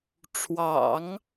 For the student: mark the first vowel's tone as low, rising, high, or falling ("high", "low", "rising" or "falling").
low